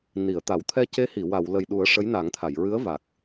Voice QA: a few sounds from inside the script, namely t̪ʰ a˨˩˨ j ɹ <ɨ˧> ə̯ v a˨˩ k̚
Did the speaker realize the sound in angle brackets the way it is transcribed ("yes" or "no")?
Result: no